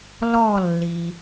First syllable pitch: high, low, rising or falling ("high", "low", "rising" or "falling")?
falling